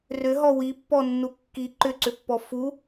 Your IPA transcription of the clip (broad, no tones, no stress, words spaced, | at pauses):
rʏɦɔ wipːɔnːu kːi ǃʏǀʏpːɔ fu